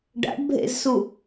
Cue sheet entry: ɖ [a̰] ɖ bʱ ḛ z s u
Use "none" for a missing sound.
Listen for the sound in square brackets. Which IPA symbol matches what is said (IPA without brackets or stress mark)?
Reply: a̰